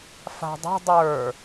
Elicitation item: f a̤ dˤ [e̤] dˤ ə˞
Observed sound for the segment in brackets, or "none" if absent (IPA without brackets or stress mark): e̤